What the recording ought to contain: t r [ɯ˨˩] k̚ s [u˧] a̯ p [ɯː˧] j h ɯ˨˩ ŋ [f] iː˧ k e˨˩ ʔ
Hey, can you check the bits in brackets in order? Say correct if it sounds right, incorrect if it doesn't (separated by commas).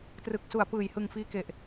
correct, incorrect, incorrect, correct